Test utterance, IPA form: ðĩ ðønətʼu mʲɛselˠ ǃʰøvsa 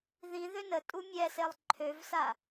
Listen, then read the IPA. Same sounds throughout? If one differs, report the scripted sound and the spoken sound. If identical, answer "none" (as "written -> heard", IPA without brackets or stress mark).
none